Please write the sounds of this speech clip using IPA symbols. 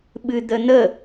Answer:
ɓɨd̪ən̪ə

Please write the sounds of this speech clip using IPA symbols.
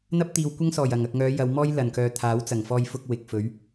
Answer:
n̪ɐ˥p̚t̪iː˨wkʷɐ˥ŋsɔː˨˩j ɐ˨˩ŋɐ˨k̚ŋœː˨˧ jɐ˨˧wmɔː˥j lɐ˨˩nkœː˨ t̪ʰaː˨˥wt͡sɐ˨˩ŋfɔː˧jfʊ˧k̚ wɪ˨k̚fɵ˨˥ɥ

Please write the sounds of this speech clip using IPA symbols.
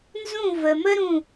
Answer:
nzũ˥˧və˧mə˥ ɾũ˥˧

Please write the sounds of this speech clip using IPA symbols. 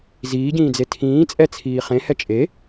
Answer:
ziːɟĩːd͡ze tʰĩː t͡sʼɛ t͡sʰiːχẽhɛ t͡ʃʼe

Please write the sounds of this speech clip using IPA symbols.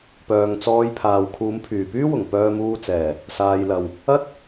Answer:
pœː˨ŋt͡sɔː˧jpʰaː˨w kʰuː˨˧mpʰyː˨˩pyː˥wʊ˨˩ŋ pœː˧muː˧t͡sɛː˨˩ | saː˨jlɐ˨˩w | ɐ˥t̚

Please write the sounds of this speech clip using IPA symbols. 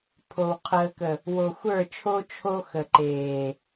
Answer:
pʰo˨w qʰəː˨kə˨ | wo˨xʷə˞˦˨t͡ʃʰo˦ t͡ʃʰo˦ xə˨ǃeː˨

